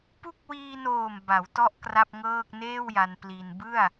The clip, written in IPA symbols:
p u˦˥ k̚ w iː˧ n oː˨˩ m b a˩˦ w t ɔ˥˩ ʔ k r a˥˩ p̚ ŋ ɤː˥˩ k̚ n eː˥˩ w j a˧ n p l i˧ n b ɯ˥˩ a̯

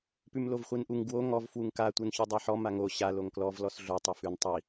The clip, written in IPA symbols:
p ʉ m l o v χʷ i n ʔ u ŋ ɡ w o ŋ ɔ v f w u ŋ k a tʷ i n ç u dˤ a ħ ɔ m a ŋ o ɕ a l o ŋ k l ɔ v l ɔ s ɮ o tˤ o f ʉ n tˤ i

